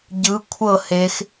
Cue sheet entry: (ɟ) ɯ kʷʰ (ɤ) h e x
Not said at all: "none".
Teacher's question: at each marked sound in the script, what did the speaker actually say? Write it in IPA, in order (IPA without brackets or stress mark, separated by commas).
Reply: ɟ, ɤ